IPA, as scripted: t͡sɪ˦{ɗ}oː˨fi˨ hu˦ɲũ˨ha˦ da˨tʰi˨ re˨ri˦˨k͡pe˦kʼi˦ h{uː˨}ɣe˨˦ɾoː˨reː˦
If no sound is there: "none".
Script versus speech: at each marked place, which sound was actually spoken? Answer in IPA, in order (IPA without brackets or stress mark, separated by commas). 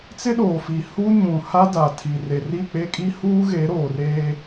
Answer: ɗ, uː˦